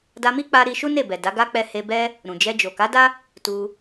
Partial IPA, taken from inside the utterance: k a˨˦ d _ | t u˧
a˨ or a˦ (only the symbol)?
a˦